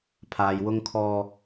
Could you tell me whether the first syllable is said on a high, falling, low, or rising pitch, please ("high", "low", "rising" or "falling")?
low